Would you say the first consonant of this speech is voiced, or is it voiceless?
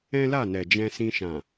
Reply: voiced